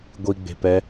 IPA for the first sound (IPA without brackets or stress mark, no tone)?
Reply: ɡʷ